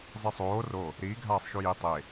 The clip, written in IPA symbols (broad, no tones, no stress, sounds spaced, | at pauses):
zˤ ɪ sˤ oː r o | ɾ iː ɡʱ aː sˤ ʃ u j i tˤ e